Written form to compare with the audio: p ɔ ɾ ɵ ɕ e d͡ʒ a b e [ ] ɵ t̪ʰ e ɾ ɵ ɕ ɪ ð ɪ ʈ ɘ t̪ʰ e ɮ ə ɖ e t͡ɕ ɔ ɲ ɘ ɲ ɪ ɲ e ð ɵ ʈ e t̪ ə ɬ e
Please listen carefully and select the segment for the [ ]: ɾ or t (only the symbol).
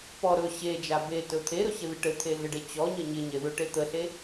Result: t